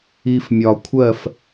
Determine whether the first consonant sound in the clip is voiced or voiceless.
voiceless